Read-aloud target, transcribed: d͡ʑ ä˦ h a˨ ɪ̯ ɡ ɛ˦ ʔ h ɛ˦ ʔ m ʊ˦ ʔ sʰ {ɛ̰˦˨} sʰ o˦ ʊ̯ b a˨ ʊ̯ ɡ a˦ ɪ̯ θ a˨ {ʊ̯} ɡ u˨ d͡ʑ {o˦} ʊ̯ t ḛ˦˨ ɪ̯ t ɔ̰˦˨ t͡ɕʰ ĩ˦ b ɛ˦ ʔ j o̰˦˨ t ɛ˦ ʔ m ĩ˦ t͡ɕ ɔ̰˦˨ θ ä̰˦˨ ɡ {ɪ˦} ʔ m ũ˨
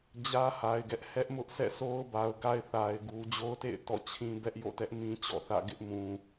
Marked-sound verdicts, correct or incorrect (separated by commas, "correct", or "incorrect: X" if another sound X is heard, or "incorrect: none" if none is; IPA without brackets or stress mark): correct, incorrect: ɪ̯, correct, correct